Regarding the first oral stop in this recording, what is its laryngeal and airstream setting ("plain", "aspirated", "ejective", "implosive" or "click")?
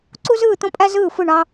click